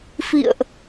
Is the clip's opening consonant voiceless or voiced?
voiceless